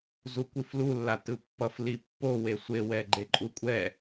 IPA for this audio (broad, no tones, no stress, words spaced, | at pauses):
zukʷiflulːa tɯpːʌf lipːowe sʷewɛ ɡ͡ǃeǃʼukʷʼɛ